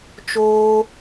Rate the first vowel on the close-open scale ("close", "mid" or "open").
mid